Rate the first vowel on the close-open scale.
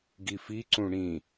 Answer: close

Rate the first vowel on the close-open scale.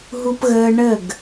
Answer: close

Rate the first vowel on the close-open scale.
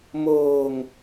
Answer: mid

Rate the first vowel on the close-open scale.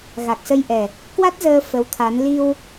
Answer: open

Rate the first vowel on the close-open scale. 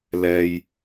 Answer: mid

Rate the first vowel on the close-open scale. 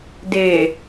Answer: mid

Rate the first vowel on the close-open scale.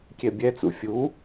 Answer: mid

